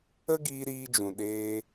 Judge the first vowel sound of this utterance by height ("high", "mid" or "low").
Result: mid